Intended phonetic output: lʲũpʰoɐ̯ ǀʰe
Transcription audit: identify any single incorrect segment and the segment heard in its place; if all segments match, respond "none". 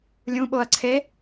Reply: pʰ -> ɓ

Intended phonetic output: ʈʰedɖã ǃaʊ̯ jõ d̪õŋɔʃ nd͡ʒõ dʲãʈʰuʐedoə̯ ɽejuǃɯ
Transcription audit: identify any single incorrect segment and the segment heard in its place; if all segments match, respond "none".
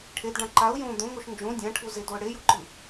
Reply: ʐ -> z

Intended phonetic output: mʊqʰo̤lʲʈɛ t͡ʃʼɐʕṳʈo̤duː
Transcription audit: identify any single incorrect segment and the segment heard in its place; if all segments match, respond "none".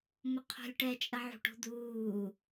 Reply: none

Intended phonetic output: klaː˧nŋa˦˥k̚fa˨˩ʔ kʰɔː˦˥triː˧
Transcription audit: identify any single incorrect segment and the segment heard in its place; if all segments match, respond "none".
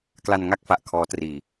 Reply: aː˧ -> a˧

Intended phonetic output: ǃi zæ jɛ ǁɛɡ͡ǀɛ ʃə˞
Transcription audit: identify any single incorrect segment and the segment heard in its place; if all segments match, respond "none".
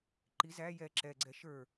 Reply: none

